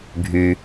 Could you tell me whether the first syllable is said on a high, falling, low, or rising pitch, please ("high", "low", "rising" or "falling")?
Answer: low